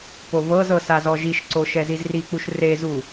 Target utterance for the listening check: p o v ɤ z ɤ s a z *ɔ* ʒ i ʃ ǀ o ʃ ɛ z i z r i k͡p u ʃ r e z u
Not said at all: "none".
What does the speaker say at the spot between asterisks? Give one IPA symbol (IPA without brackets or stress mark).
ɔ